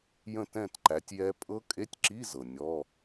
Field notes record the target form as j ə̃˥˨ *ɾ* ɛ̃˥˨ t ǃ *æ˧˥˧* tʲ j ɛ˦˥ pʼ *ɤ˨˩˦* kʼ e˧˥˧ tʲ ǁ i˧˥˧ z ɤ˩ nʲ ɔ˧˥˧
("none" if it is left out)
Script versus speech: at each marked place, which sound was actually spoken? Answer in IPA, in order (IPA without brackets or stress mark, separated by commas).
t, æ˨˦, ɤ˦˥